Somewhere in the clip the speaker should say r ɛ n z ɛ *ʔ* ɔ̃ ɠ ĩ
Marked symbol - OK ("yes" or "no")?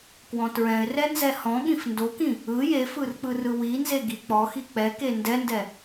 no